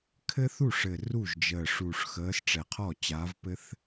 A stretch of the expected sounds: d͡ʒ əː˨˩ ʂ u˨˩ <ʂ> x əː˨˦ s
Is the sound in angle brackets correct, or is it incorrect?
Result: correct